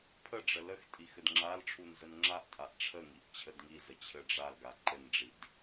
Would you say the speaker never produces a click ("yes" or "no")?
no